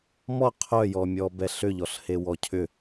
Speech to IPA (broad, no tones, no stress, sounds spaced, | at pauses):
m ɔ qʰ œ j ɔ mʲ ɔ b ɛ ɬ ʏ ʎ ɔ ɬ h e w ɔ cʰ ʏ